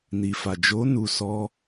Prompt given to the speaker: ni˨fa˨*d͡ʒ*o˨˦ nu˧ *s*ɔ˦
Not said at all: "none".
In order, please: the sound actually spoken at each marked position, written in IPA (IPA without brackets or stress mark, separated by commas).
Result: d͡ʒ, s